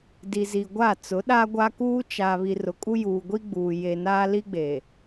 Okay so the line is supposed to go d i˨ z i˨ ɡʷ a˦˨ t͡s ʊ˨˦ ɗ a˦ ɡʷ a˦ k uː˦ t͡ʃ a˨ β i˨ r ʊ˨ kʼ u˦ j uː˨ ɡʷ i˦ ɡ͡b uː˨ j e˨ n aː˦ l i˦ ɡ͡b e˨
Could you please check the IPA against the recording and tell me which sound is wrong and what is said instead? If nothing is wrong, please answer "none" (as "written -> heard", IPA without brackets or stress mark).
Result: none